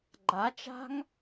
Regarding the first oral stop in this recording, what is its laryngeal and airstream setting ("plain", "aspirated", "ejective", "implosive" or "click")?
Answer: click